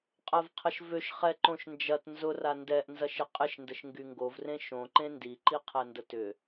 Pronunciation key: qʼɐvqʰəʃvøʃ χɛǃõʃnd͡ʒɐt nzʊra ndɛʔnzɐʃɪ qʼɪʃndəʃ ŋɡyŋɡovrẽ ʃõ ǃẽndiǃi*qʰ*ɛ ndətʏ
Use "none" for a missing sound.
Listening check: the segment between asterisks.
qʰ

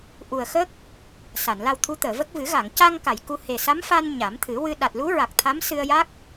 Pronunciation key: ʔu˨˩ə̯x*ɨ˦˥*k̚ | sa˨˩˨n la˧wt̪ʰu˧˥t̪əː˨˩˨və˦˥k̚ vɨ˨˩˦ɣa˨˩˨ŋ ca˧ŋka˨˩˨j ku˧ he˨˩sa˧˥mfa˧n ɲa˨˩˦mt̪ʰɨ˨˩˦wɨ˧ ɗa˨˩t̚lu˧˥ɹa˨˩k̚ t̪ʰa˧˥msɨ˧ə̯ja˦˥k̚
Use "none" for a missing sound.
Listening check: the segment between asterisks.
ə˦˥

